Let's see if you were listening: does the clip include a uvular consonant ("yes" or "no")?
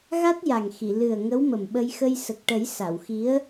no